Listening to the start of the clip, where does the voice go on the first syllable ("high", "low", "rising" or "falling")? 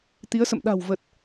rising